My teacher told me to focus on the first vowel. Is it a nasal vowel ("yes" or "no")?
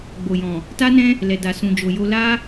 no